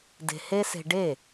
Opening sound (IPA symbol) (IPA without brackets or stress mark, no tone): d